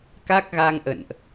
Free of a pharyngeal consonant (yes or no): yes